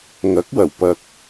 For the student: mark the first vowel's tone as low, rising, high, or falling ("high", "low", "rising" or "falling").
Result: rising